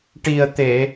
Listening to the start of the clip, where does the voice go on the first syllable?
low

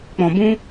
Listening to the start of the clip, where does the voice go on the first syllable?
low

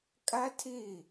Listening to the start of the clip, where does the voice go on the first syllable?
high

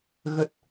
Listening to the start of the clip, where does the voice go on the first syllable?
low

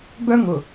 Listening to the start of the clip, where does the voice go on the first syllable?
high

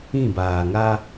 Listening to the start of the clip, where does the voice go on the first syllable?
falling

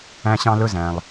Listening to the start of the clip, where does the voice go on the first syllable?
high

